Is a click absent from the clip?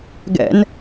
yes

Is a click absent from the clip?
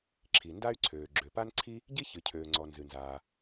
no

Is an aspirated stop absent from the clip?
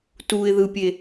yes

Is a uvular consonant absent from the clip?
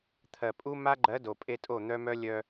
yes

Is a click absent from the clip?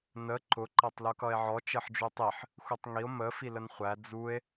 no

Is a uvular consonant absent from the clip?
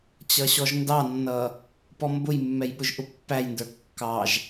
yes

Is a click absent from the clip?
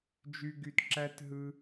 no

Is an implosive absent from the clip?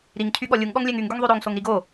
no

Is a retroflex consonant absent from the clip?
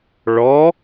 no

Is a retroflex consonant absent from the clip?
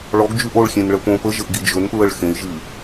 no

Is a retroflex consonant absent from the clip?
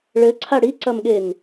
no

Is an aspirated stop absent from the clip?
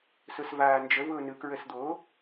yes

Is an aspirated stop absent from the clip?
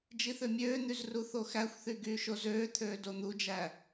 no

